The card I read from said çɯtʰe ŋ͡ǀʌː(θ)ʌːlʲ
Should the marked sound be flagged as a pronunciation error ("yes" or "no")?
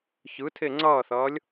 no